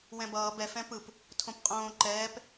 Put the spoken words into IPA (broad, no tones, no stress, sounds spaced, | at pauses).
w ɛ̃ b ʌː b ɛ f ɛ̃ p ɯ p | tʰ õ p qʼ õː ǃ ɛː p